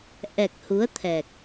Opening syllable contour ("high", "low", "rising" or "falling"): low